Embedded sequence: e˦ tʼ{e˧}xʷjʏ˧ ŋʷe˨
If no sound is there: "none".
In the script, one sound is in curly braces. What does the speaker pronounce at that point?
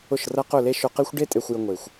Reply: e˧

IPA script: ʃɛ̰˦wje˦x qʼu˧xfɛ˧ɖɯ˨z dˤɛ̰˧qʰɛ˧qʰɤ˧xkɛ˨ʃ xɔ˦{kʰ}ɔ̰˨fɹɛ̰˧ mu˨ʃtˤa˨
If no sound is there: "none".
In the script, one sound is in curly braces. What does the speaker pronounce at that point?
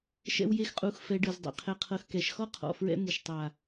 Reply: qʰ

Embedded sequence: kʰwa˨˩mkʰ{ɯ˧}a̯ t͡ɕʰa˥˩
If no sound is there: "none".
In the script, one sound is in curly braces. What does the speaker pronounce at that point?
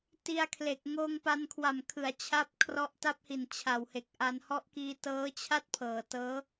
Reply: ɯ˩˦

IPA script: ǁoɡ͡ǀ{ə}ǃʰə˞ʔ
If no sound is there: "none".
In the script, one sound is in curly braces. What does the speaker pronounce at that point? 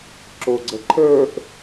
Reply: ə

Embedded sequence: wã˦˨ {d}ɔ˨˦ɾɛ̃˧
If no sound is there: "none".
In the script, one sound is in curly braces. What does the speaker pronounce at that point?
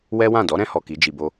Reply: d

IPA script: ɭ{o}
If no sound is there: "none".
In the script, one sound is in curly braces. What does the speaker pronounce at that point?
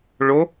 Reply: o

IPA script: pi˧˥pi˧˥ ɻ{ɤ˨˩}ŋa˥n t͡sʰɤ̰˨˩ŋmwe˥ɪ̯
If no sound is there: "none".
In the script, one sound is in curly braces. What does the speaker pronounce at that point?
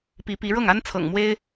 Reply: ɤ˥˩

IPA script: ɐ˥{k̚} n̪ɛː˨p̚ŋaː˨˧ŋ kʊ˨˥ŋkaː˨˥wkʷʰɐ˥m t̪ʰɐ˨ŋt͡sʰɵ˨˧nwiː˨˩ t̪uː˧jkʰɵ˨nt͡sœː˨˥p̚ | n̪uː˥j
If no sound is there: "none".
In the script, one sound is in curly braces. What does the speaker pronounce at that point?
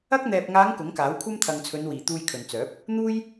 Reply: k̚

